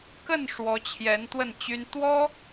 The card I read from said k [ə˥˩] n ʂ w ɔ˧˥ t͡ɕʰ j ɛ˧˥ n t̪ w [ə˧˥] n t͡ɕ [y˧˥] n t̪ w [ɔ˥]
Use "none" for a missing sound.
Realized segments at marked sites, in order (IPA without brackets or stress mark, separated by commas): ə˥˩, ə˥˩, y˥, ɔ˥